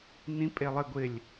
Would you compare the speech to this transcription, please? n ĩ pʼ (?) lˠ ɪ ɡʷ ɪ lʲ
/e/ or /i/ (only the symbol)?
e